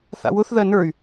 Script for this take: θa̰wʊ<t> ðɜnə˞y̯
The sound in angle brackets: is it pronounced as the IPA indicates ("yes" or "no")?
no